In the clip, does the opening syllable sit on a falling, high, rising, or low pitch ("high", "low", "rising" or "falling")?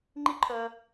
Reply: high